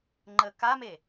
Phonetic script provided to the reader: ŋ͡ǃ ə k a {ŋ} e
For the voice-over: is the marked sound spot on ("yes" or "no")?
no